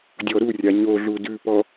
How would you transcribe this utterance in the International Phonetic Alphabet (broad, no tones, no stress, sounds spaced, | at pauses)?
dʲ ɔ ɾ u rʲ a ɲ o ɮ u d ʉ p ɔ